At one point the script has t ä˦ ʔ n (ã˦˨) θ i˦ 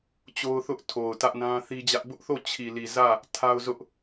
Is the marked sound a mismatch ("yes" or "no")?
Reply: yes